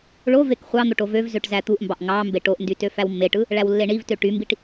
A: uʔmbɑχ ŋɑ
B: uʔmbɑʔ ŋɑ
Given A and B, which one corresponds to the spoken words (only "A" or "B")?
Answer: B